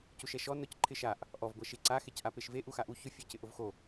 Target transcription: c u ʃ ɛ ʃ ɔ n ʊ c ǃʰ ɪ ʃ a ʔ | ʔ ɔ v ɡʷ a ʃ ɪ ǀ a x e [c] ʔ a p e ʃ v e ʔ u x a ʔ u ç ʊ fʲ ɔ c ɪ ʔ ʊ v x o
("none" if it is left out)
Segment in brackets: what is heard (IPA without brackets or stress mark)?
c